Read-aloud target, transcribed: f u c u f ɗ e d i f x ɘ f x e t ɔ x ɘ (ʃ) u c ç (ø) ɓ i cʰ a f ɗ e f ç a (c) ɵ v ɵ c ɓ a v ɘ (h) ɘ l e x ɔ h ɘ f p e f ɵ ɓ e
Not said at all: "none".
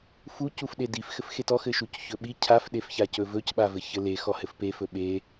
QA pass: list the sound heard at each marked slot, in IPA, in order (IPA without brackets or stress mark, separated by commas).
ʃ, ɵ, c, ç